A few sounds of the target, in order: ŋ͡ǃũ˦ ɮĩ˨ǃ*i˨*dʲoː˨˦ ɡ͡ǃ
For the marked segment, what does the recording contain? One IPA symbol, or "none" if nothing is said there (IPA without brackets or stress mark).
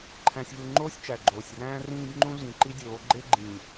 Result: i˦